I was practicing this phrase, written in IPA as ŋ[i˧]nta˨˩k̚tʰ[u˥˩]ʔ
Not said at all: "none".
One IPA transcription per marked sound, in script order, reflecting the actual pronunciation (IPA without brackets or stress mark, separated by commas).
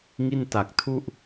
i˥˩, u˥˩